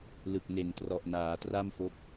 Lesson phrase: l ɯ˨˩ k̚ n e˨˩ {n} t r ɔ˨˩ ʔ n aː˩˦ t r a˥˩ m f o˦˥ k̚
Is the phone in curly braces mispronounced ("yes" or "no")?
no